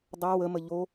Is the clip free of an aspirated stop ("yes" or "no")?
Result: yes